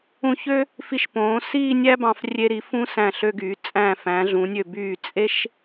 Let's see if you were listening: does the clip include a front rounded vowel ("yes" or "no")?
yes